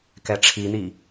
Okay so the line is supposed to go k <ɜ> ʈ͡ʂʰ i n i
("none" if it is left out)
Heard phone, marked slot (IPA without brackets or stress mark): ɛ